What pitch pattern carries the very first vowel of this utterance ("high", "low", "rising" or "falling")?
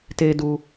high